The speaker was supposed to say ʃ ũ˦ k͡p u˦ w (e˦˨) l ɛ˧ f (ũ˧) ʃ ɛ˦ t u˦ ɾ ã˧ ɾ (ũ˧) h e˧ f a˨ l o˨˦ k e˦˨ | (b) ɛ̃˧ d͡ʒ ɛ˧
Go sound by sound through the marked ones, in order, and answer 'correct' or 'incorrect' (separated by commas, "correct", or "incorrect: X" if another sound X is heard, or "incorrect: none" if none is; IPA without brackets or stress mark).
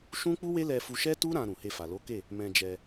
incorrect: e˦, incorrect: u˧, incorrect: ũ˨, incorrect: m